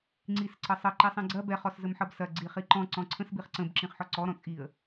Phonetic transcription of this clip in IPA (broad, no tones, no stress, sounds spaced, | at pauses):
ŋ͡ǀ i s ǀ ə sˤ ə ǃ i sˤ ĩ ɡ͡ǀ ɐ b ɛ χ ɔ s z ə m ħ ʌ b s ɐ ɡ͡ǀ i χ i ǃ ɔ̃ ǀ ɔ̃ ǀʰ ə̃ s b i χ ǀ ə̃ b ǁ ĩ χ ħ ɔ ǀ ɔ ɾ ɔ̃ t͡sʼ i ə̯